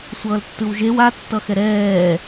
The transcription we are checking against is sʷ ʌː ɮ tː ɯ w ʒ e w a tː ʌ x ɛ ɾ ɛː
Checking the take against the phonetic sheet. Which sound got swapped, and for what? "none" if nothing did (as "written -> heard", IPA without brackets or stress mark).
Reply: ɮ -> l